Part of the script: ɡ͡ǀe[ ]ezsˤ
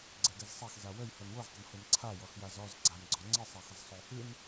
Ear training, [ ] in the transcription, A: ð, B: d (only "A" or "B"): B